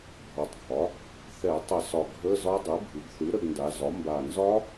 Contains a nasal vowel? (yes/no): no